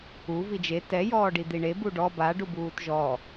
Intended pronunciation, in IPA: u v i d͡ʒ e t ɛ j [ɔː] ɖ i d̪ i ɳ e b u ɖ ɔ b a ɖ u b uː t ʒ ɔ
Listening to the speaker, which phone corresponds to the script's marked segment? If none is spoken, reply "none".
ɔː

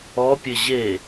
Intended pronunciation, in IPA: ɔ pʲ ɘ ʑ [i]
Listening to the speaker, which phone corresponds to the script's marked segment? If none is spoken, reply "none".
e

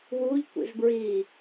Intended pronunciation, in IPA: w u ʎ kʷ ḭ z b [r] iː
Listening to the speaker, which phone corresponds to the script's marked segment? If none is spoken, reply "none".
ɹ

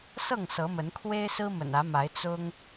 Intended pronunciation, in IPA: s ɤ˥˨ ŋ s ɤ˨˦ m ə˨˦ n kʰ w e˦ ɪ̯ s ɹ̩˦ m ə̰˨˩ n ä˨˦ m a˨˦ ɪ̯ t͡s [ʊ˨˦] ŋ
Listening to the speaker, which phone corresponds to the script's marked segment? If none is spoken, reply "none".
ʊ˦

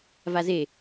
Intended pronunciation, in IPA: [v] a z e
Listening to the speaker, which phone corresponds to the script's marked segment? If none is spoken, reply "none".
v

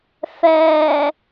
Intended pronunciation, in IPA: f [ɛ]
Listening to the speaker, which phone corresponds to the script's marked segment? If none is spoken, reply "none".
ɛː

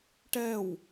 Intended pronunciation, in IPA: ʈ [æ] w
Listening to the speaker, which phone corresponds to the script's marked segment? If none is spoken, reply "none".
ɛ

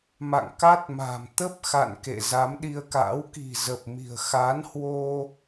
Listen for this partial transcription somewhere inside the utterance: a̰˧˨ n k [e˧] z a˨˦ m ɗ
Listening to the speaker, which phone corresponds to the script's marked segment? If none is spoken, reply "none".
ḛ˧˨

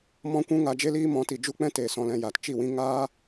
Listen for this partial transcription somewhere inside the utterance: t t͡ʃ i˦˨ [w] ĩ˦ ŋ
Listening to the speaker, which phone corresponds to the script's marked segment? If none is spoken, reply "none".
w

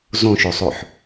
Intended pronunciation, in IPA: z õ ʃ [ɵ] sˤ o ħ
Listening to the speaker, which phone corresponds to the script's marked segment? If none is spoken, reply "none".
o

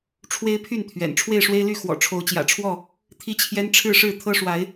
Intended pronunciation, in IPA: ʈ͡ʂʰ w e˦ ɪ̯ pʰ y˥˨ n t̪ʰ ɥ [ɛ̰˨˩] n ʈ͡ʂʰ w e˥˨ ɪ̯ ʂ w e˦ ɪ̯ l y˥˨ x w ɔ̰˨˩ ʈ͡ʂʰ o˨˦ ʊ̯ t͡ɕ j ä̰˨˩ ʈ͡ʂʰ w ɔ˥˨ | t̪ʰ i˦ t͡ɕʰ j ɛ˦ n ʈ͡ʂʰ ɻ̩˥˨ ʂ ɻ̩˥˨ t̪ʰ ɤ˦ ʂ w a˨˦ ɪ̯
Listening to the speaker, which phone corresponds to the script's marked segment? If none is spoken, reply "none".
ɛ̰˨˩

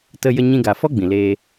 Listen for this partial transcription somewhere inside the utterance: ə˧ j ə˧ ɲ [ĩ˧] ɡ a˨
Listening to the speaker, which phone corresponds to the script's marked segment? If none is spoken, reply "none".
ĩ˧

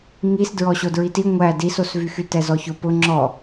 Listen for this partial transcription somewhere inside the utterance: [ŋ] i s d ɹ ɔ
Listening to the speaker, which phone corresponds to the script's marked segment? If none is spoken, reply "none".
ŋ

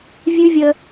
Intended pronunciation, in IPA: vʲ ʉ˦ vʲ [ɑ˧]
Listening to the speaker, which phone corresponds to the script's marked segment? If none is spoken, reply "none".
ə˧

